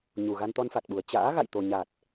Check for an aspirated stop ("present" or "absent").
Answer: absent